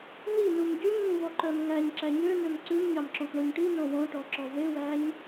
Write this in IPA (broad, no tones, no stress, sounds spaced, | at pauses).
n i n u m ɟ y ɲ ŋ ĩ v ɔ ǃ œ m ŋ æ ɲ ǁ æ ɲ ø n ø m ǀ ʉ m ɲ ɑ m ǁ õ k ɳ o ɲ ʈ i n õ w õ ʈ ɔ ǁ ɔ v e w æ ɲ